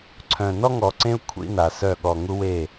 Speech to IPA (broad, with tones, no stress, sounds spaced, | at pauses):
ǀʰ œ̃˨ n ɔ˦ ŋ ɔ˨ ǀ ẽ˦ u̯ kʷʰ ḭ˦ n a˨ s œ˦˨ ɠ ɔ˨ ŋ u˦ w e˦˨